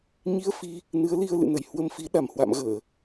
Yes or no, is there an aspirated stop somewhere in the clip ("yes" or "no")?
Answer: no